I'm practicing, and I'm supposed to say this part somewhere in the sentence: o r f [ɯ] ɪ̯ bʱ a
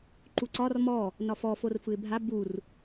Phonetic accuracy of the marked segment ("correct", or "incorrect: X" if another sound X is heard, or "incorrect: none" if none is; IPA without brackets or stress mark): correct